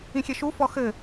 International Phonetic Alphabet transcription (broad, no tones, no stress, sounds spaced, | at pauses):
ĩ xʲ ɛ ʃ u f ɔ x ɘ